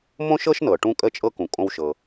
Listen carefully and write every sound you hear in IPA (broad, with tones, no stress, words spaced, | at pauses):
mõ˥ʃɤ˥ʃnɤ˩ ʈũ˥kʼə˥t͡ʃʼɤ˥ kũ˩kʼõ˥wʃɤ˩